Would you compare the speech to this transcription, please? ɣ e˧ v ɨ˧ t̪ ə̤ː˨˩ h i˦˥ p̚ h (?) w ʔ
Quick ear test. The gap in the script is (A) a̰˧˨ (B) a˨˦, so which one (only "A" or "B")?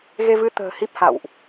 A